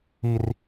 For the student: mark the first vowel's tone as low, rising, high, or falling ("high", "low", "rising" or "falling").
low